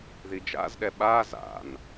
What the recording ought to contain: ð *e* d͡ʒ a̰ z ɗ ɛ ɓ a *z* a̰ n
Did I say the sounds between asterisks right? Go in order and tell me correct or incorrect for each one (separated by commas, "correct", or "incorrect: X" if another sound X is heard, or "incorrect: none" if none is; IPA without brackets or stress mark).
incorrect: i, correct